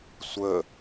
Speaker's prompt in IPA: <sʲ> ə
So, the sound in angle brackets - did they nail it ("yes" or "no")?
no